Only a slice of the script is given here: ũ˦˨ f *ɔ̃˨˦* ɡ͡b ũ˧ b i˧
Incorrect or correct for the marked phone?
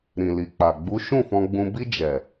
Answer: incorrect: ɔ̃˧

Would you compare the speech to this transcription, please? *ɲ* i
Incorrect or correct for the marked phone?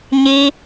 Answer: correct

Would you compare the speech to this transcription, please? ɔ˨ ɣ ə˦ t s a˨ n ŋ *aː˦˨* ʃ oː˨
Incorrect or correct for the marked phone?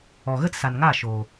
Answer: correct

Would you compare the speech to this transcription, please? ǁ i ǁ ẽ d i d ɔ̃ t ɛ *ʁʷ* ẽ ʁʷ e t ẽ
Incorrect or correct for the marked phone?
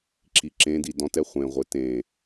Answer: incorrect: χʷ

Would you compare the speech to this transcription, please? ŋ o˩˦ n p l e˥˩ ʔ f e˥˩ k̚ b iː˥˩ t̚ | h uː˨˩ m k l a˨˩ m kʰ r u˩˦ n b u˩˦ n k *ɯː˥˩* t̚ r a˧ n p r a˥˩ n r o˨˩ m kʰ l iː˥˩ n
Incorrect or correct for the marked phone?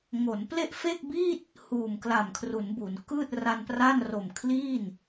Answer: correct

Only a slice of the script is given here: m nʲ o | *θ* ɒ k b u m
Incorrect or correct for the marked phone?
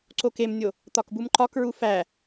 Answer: incorrect: t̪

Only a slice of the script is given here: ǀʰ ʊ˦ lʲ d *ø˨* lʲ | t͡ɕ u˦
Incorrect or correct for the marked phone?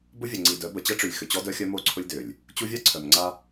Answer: correct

